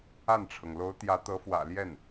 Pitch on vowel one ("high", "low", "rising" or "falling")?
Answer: falling